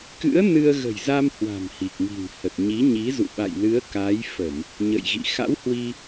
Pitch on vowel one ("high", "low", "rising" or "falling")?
rising